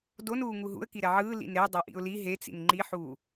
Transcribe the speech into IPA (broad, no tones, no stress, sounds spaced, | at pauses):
d o n uː ŋ u ɦ ṵ ə̯ k i ɾ ɛ ʕ ɯː l ḭ n ɾ e dˤ a ʔ ḭ ʊ̯ l i ɦ e t͡s ḭ n ŋ͡ǃ i ħ uː